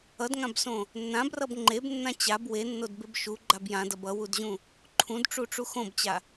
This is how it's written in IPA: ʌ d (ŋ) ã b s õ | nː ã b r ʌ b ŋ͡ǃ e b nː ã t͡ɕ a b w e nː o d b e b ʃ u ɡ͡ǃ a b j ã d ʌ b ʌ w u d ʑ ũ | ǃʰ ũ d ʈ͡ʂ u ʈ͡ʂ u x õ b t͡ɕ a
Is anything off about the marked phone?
no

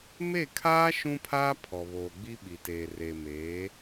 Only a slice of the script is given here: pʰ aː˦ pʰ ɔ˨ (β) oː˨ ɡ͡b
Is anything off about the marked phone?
no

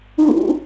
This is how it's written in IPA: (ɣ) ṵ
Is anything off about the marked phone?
no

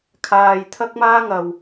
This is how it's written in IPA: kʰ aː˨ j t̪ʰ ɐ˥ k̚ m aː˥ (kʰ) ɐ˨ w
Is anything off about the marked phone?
yes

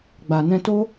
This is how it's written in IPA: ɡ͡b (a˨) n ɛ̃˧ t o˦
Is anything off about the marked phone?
no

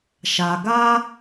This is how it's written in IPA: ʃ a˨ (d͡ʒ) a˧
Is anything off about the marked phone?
yes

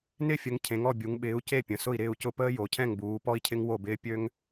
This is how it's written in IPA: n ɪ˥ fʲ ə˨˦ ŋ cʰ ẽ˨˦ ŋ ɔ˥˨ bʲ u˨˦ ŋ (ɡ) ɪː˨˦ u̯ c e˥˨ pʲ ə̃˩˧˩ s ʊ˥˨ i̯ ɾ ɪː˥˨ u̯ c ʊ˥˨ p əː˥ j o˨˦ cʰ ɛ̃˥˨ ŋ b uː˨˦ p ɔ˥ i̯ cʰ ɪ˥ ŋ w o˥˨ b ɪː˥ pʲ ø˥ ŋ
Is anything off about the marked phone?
yes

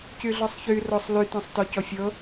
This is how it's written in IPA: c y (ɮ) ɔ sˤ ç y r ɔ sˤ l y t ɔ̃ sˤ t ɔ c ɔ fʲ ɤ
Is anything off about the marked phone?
no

